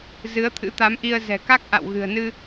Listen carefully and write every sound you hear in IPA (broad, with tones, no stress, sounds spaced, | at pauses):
z ɨ˨˦ ə̯ t̪ʰ ɨ̰˧˥ t̪ a˨˦ m ʔ i˧ ə̯ z ɛ̤˨˩ k a˦˥ k̚ ʔ a̰˧˨ w ɣ ɨ̤˨˩ ə̯ n ɨ˧